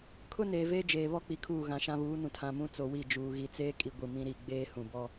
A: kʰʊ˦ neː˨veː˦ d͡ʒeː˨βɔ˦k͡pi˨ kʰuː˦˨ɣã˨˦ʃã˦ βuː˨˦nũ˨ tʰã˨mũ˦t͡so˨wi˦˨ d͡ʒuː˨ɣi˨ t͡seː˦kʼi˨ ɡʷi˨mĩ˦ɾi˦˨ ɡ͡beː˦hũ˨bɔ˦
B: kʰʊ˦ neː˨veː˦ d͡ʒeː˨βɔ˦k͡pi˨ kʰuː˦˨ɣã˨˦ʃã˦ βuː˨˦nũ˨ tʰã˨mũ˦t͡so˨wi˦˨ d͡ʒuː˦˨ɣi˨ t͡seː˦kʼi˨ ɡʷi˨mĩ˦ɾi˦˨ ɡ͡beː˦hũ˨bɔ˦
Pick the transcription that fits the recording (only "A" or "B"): A